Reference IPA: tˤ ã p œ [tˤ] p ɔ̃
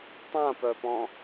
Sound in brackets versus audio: incorrect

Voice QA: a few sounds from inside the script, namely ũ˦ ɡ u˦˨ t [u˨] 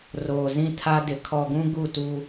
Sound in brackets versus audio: incorrect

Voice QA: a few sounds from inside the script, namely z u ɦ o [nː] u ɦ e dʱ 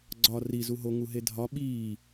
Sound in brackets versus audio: incorrect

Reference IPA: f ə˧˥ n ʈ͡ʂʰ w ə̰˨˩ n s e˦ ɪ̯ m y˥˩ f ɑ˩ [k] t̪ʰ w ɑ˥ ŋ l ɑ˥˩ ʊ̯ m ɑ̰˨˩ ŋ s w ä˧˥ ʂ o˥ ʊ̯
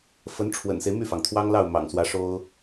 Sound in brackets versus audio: incorrect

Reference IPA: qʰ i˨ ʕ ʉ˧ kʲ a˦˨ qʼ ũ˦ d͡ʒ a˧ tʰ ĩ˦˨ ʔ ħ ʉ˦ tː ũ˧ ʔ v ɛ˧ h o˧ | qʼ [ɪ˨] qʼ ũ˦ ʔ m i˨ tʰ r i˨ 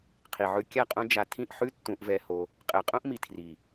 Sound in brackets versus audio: incorrect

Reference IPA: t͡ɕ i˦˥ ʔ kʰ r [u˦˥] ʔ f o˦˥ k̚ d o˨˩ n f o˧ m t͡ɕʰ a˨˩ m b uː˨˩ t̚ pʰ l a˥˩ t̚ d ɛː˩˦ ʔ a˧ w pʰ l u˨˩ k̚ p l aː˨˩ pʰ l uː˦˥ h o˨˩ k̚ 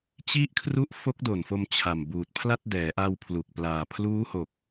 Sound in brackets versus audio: correct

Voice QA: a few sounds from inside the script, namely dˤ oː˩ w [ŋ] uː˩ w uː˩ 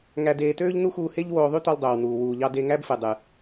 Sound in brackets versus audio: incorrect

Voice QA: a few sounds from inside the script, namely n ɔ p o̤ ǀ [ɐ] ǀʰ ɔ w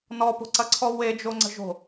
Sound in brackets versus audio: correct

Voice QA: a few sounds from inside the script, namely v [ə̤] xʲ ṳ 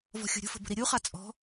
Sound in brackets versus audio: incorrect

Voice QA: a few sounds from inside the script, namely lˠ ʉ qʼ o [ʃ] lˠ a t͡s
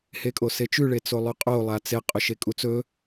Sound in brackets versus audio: incorrect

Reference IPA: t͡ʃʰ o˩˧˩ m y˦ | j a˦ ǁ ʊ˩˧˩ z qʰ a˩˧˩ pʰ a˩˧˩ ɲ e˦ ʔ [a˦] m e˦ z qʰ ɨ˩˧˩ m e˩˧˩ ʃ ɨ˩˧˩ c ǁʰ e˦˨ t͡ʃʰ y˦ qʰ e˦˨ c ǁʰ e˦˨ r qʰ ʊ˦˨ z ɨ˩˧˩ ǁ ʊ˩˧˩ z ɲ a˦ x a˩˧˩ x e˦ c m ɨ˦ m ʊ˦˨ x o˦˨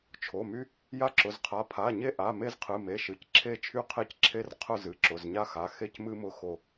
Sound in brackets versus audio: incorrect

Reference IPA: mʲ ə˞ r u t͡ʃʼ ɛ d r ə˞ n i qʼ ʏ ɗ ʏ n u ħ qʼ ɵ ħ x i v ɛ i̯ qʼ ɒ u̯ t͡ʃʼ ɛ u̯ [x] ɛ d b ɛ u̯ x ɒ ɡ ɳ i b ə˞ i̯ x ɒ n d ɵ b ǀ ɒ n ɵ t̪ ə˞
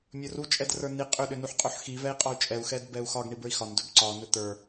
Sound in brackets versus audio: correct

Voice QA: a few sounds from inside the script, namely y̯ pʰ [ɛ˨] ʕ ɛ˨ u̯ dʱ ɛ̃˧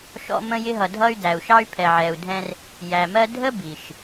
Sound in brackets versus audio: correct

